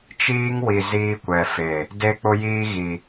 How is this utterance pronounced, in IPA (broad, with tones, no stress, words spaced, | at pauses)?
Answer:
t͡ʃiː˦ŋwi˨ ziː˦kʷɛ˨fe˨ | de˦k͡pʊ˦jiː˦ɣi˨